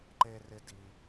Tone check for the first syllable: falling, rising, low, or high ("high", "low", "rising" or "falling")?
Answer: high